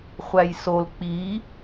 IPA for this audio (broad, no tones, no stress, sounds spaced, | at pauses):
χʷ æ j s o l k͡p i